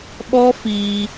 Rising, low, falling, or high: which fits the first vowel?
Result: high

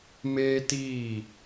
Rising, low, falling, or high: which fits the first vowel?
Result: high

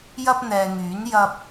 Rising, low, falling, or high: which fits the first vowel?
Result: high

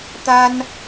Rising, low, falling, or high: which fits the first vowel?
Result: high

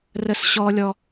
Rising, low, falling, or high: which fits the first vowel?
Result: low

